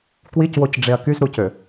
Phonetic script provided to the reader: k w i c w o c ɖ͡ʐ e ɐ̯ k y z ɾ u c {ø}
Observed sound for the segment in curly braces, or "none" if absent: ø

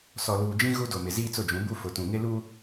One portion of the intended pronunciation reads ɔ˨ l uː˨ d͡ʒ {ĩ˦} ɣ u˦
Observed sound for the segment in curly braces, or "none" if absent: ĩ˦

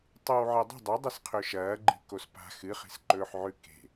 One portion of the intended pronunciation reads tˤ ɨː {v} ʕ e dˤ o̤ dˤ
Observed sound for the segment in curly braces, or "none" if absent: w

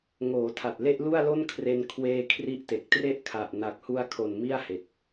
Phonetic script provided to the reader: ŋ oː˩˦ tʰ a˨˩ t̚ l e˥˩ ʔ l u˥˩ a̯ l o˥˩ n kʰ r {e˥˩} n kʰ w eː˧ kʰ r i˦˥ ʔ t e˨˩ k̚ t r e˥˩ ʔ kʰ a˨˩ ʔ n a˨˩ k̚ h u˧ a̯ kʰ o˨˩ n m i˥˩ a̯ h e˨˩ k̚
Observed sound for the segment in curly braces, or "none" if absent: e˧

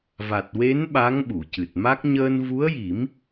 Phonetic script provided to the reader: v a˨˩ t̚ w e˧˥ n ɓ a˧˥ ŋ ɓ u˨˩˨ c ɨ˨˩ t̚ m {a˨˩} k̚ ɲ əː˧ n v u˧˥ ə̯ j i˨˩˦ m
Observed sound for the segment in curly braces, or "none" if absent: a˦˥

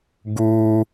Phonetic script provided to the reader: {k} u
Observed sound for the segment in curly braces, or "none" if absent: ɡ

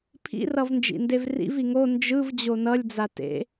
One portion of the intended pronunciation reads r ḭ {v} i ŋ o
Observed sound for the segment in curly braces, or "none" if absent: v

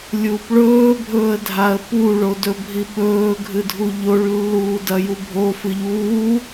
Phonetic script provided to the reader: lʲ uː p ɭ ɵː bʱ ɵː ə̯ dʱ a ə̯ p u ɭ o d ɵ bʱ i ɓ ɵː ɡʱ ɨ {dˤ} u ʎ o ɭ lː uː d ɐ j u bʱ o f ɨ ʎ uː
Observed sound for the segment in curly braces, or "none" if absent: dʱ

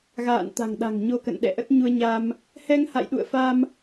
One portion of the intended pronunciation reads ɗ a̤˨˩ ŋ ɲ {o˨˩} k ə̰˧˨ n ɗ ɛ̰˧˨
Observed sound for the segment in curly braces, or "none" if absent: o˧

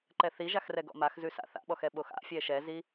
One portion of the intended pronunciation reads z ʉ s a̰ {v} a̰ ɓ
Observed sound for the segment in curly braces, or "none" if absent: θ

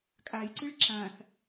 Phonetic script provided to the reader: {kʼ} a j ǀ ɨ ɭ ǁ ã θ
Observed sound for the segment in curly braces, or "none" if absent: kʼ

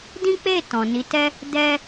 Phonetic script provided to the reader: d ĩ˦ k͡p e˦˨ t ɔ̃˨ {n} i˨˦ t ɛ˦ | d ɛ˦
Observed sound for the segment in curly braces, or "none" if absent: n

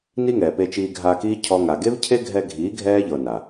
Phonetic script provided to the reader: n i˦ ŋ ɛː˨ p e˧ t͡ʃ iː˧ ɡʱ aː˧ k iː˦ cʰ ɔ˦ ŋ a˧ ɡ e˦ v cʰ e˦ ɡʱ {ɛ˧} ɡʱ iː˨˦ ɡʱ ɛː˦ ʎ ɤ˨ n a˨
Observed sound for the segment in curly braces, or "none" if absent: ɛ˧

